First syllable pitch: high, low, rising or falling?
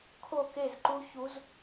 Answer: falling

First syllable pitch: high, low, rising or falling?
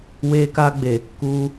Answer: high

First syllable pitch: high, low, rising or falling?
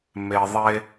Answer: low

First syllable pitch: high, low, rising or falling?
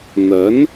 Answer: rising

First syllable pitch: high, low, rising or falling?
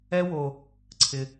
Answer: high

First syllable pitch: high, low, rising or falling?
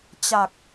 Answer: low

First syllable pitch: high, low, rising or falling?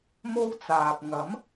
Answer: high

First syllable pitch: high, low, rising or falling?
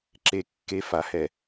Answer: low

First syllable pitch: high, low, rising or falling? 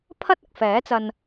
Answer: high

